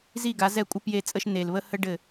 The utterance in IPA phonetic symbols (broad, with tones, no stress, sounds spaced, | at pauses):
z i˦˨ ɡ a˨˦ z ɛ˦˨ kʷʼ ə˦ p j e˦˨ t͡sʼ ə˦ ʃ n e˨ l β ə˦ h ə˦ ɖ ɘ˦˨